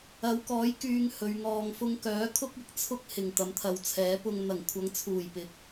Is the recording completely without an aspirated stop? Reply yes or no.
no